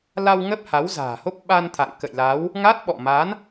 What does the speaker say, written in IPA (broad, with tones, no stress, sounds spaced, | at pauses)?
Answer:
l a˧ w ŋ ə˦˥ p̚ h a˨˦ w z a̤ː˨˩ h o˦˥ p̚ ɓ a˧ n t̪ʰ a̰˧˨ ŋ k ə̰˧˨ j l a˨˦ w | ŋ a˦˥ t̚ ɓ ɔ̰˧˨ m a˨˦ n